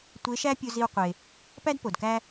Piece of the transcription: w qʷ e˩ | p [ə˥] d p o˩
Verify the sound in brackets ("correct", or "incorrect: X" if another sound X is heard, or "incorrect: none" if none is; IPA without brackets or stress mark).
incorrect: æ˥